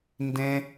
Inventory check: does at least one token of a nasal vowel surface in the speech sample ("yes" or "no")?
yes